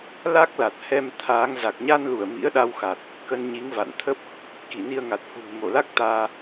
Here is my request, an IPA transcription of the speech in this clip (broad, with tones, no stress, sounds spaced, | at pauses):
l a˦˥ k̚ l a˨˩ t̚ h ɛ˧ m t̪ʰ aː˨˦ ŋ z a˨˩ k̚ ɲ a˧ n l u˧˩ ə̯ m ḭ˧˥ ə̯ ɗ a˧ w x a˨˩ t̚ | k ə˧ n ɲ i˨˦ ŋ v a̰˧˨ n t̪ʰ ə˦˥ p̚ | k i˧˩ n i˧ ə̯ ŋ a˨˩ t̚ h ṳ˨˩ ŋ m o˧˩ l a˦˥ k̚ t̪ aː˧